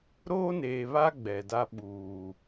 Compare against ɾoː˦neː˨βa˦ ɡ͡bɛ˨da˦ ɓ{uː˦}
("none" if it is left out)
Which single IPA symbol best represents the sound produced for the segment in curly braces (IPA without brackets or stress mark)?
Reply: uː˨